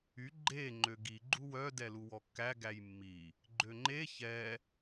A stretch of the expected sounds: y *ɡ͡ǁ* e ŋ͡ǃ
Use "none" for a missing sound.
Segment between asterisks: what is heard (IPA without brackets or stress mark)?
ɡ͡ǃ